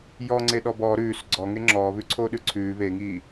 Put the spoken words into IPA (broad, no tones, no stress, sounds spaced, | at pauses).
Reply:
j ɔ ŋ͡ǀ e ɗ ɔ b ɔ ɾ ʉː s ɡ͡ǀ ɔ ŋ e ŋ͡ǁ ɔː β ʉ ǀʰ oː ɗ ʉ ǀʰ ʉː β e ŋ iː